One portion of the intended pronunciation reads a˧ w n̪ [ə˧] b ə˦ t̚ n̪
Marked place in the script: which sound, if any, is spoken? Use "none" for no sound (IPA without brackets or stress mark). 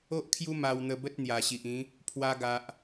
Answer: ə˧